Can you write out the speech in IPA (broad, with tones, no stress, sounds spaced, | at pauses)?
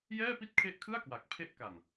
j ɛː˥˩ p i˥˩ t̚ kʰ e˦˥ ʔ kʰ ɯ˥˩ a̯ k w a˨˩ k̚ pʰ e˦˥ ʔ k a˨˩ n